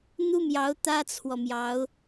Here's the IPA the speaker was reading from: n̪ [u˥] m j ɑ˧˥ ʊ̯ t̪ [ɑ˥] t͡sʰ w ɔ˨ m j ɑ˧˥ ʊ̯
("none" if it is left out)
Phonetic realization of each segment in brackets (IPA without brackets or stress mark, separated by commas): u˥, ä˥